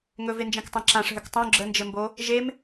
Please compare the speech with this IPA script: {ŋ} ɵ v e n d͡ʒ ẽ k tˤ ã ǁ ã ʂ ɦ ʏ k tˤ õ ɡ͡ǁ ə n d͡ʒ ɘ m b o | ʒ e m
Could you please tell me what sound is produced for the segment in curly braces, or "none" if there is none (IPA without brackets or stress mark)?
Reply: ŋ